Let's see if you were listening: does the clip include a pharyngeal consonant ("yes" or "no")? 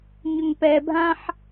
yes